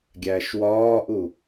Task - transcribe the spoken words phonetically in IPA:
ɡʲ æ ʃ w ɒː ʔ u

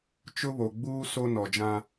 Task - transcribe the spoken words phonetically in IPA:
t͡ʃ ʊ˦ β o˨ ɡ͡b uː˦ s o˦ n ɔ˨ d͡ʒ ã˦

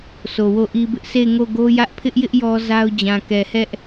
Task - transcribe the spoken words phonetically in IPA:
s o˨ w o˦˨ ʔ i˦ b ɪ˦ ʔ s e˦˨ ɪ̯ ŋ o˦˨ ɡ o˦ j ä˦ ʔ pʰ ɪ˦ ʔ j ɪ˦ ʔ j ɔ˦ z a˦ ʊ̯ d͡ʑ ã˨ k ɛ˨ h ɛ˦ ʔ

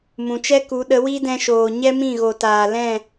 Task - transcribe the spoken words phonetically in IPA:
m ũ˨ t͡ʃ ɛ˦ k u˨˦ ɗ ə˨˦ w i˦ d ɛ̃˧ ʃ oː˨ ɲ ɛ˦ m ĩ˦˨ ɣ o˨ t aː˨ l ɛ̃˦˨

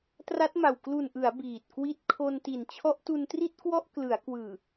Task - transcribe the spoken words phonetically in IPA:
t r a˦˥ t̚ m a˨˩ w k l u˨˩ n ʔ ɯ˩˦ a̯ b iː˨˩ t̚ k w i˦˥ t̚ kʰ o˧ n t i˨˩ n t͡ɕʰ ɔ˦˥ ʔ t u˧ n t r i˥˩ t̚ k w ɔ˥˩ ʔ k l ɯ˩˦ a̯ k w ɯː˨˩

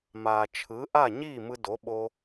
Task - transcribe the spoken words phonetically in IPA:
m aː˩ t͡ʃʰ ɯ˩˥ ʔ a˥˩ ɲ iː˥˩ m ɯ˧ d o˩˥ ɓ o˧

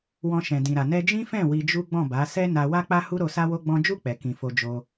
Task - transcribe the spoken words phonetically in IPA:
w ɔ̃˧ ʃ ɛ̃˨ d ĩ˨ ɾ a˨ n ɛ˧ d͡ʒ ĩ˦ f ɛ̃˦˨ w i˧ d͡ʒ u˦ ɡ͡b ɔ̃˦˨ b a˨˦ s ɛ˦ n a˧ w a˦ k͡p a˦ h u˦ ɾ o˧ s a˦ w o˦ ɡ͡b ɔ̃˦ d͡ʒ u˦˨ k͡p ɛ˨ k ĩ˨ f o˧ d͡ʒ o˧

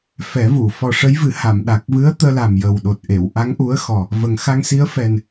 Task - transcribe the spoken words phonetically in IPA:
f ɛ˨˩˦ v u˨˩˨ f ɔ˨˩ ʂ ə˧˥ j v ɨ˨˩˦ h a˨˩˨ m ɗ a˨˩ k̚ v ɨ˧˥ ə̯ t̪ əː˧ l a˨˩ m j ə˨˩ w ɗ o˨˩ t̚ ʔ e˨˩˨ w ʔ a˧˥ ŋ ʔ u˧˥ ə̯ x ɔ˨˩ | v ə˨˩ ŋ x a˧ ŋ s i˧˥ ə̯ f ɛ˨˩ n

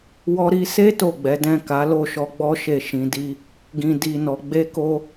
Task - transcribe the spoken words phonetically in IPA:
w ɔ˧ ɾ i˧ s e˦ t o˦˨ ɡ͡b ɛ˨˦ d ɛ̃˦˨ k a˨˦ l o˦˨ ʃ ɔ˧ ɡ͡b ɔ˦ ʃ e˦˨ ʃ ĩ˧ d i˦ | ɡ ĩ˧ d i˧ n ɔ˧ ɡ͡b e˦ k o˦

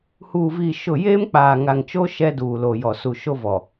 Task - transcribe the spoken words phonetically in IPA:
h uː˨ v iː˨ ʃ ʊ˦˨ j eː˦ m k͡p aː˨ ŋ a˨ ŋ t͡ʃ o˦ ʃ ɛ˦ d uː˨ l o˨ j ɔ˨ s u˨ ʃ o˦ v ɔ˨

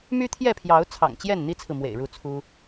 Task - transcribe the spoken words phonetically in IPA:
m y˦ t̪ʰ j ɛ˥˨ pʰ j ɑ˨˦ ʊ̯ t͡sʰ ɑ̰˨˩ ŋ t͡ɕ j ɛ˥˨ n n̪ i˦ t͡sʰ ɹ̩˨ m w ḛ˨˩ ɪ̯ ɻ u˥˨ t͡sʰ u˦

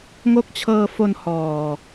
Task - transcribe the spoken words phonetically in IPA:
ŋ o˦˥ k̚ t͡ɕʰ ɤː˧ f o˧ n h ɔː˨˩

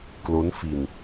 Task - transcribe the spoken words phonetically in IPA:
k l o˦˥ n f i˧ n

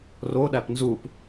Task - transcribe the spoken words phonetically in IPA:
r o ɗ æ p n z u p

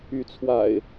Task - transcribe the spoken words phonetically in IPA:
y˨˦ t͡sʰ w a̰˨˩ ɪ̯

